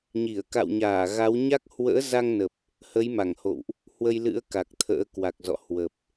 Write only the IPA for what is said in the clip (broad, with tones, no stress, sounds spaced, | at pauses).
ɲ i˧˩ ə̯ k a̰˧˨ w ɲ aː˧˩ ɣ a˨˦ w ɲ a˦˥ k̚ h w ə̰ː˧˥ z a˧ ŋ n ə˨˩ p̚ | h ə˨˦ j m a˧˩ ŋ h o̰˧˨ w ʔ | h w ə˧ j l ɨ̰˧˥ ə̯ k a˨˩ k̚ t̪ʰ ə̰ː˧˥ k w a˨˩ k̚ z ɔ̰˧˨ h w ə˨˩ p̚